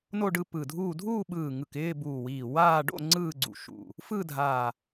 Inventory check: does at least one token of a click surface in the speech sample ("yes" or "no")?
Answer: yes